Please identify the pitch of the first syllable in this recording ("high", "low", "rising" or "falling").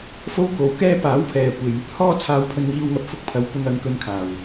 high